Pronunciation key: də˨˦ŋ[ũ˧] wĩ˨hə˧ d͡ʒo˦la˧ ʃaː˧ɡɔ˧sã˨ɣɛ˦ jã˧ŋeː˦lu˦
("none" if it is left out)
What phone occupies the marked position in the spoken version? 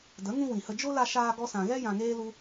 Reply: ũ˧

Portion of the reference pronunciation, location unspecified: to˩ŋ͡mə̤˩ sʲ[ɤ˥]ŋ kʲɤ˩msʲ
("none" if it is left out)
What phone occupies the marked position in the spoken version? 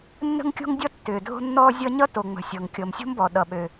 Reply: ɤ˩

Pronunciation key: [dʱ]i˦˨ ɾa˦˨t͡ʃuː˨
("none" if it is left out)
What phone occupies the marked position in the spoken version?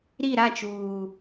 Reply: ɾ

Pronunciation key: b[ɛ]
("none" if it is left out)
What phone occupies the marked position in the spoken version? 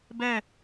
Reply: ɛ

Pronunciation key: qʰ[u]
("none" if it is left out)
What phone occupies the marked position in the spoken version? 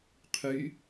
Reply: y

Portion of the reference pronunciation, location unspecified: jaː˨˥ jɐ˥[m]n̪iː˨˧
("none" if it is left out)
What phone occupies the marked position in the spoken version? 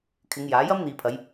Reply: m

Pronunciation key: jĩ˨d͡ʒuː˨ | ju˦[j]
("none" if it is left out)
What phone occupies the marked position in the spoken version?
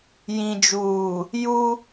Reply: none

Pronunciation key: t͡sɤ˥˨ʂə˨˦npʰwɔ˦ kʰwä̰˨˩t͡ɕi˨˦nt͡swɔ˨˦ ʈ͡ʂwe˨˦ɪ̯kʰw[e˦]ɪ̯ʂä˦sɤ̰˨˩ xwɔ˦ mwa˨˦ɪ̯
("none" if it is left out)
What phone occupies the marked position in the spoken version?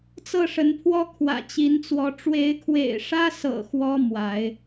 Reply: ḛ˨˩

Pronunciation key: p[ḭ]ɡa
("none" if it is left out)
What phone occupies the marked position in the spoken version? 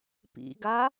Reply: ḭ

